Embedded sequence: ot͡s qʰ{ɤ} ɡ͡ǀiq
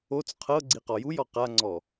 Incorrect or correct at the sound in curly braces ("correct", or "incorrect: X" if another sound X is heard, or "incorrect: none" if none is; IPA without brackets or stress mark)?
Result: correct